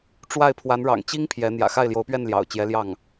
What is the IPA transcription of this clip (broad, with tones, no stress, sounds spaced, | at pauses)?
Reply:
ʈ͡ʂ w a˥˩ ɪ̯ pʰ w a˧˥ n ɻ ɑ̰˨˩ ŋ t͡ɕ i˥ ŋ pʰ j ɛ˧˥ n̪ j ä̰˨˩ x a˥˩ ɪ̯ l j o˧˥ ʊ̯ p ɥ ɛ˥˩ n l j ɑ̰˨˩ ʊ̯ t͡ɕ j ɛ˧˥ l j ɑ˥˩ ŋ